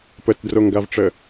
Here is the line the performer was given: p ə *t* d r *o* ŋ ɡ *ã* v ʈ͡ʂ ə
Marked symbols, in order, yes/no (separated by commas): yes, yes, no